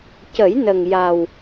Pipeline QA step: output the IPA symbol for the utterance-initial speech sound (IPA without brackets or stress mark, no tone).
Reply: c